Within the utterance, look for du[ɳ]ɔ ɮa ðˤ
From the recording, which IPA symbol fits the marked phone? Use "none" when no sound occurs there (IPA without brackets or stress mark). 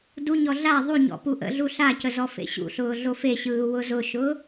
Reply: ɲ